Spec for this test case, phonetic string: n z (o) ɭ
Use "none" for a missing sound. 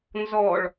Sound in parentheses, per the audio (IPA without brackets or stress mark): ɔ